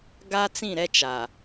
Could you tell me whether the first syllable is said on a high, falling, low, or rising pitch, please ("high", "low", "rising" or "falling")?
high